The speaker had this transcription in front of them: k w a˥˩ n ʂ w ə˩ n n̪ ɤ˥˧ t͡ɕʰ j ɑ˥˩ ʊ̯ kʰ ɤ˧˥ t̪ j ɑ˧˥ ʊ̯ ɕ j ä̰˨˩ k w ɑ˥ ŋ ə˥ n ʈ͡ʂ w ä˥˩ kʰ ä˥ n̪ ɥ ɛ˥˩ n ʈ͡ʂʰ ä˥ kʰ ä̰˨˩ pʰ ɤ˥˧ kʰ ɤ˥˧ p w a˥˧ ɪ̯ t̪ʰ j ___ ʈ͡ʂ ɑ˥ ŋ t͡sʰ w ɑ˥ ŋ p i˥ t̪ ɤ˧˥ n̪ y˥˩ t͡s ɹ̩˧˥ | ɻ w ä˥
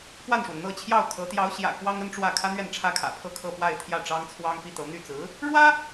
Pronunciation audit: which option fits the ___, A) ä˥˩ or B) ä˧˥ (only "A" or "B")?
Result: A